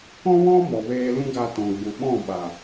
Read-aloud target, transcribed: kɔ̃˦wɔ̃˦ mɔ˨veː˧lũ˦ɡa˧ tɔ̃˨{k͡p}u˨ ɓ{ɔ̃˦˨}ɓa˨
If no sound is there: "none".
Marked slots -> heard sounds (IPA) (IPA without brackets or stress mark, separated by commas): ɡ͡b, ɔ̃˦˨